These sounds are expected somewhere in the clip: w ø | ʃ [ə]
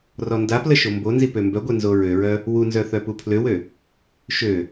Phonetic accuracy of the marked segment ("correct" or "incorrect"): incorrect